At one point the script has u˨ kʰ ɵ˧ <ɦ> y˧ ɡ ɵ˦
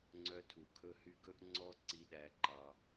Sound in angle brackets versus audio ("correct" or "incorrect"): incorrect